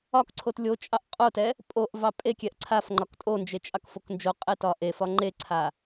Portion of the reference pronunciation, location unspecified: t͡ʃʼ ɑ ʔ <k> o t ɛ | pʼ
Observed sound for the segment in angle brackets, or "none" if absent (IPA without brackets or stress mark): qʼ